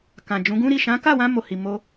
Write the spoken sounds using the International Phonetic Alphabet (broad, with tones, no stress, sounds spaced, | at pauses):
k ã˨ d͡ʒ ũ˨˦ ɡ ũ˦ ɾ i˦˨ ʃ ã˨˦ k a˦˨ w ã˧ m o˨ h i˨ m o˧